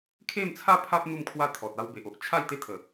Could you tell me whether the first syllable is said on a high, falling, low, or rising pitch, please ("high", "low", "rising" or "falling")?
falling